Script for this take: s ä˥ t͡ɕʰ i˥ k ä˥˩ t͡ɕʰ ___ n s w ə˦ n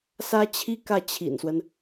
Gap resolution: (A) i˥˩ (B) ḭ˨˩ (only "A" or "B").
B